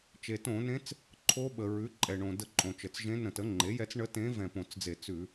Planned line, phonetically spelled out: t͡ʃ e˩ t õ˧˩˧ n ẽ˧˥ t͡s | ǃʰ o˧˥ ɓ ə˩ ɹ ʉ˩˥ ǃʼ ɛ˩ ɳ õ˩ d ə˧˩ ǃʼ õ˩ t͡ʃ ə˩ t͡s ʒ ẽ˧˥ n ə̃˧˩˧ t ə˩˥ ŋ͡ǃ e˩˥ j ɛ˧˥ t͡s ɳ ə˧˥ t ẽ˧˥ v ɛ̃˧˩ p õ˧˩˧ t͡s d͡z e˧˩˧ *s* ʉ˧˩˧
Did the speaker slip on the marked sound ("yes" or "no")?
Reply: yes